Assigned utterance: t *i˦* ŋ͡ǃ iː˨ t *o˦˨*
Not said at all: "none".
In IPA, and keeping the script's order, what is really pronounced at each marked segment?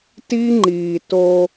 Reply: i˦, o˦

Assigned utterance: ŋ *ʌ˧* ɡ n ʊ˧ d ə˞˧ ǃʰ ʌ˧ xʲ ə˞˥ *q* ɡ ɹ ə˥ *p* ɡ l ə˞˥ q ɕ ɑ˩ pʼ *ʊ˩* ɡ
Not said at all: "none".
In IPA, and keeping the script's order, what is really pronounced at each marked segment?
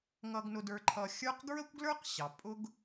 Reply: ʌ˧, q, kʷ, ʊ˥

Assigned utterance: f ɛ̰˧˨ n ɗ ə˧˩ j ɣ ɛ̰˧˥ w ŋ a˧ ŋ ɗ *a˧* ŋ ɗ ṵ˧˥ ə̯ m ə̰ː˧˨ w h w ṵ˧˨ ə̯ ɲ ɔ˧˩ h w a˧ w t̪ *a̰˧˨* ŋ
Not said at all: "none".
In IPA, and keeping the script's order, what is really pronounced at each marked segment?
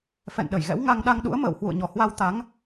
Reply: a˧, a˨˦

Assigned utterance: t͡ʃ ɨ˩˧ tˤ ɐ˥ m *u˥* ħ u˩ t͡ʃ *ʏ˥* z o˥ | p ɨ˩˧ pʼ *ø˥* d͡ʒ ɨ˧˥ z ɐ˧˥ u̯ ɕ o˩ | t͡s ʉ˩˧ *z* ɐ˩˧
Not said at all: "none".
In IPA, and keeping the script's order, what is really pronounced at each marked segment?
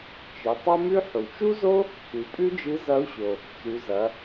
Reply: ʉ˥, u˥, ʉ˥, z

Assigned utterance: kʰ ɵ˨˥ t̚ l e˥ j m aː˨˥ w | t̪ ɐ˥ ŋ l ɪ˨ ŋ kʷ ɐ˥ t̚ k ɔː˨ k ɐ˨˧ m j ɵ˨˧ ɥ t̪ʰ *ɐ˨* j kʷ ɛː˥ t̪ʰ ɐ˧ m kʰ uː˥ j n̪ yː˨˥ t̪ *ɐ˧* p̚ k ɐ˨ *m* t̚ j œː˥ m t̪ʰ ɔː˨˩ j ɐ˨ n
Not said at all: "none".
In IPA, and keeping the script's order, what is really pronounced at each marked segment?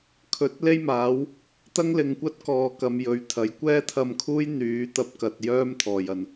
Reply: ɐ˨˥, ɐ˧, none

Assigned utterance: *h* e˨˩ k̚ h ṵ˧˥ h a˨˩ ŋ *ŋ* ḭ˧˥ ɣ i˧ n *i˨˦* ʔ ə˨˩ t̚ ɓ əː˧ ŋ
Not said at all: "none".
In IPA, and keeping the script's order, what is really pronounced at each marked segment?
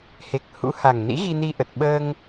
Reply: h, n, i˧

